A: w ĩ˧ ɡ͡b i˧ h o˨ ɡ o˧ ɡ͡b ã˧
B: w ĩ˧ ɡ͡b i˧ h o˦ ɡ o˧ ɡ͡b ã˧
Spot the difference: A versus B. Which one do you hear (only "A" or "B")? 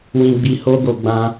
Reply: B